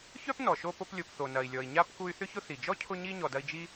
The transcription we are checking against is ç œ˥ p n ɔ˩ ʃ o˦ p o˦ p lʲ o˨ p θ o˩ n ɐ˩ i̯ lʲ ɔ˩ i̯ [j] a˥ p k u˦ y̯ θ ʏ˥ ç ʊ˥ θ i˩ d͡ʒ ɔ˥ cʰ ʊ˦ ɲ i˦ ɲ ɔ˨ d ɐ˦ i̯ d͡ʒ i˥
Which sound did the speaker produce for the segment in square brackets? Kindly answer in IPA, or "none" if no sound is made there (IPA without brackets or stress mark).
ɲ